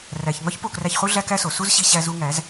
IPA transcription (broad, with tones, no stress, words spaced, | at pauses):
ræ˨çŋɒ˦ç po˦˨kræ˧çχu˦ ɮæ˦kæ˦so˨ su˦zɕi˧ɕæ˧ zu˧ŋæ˨˦z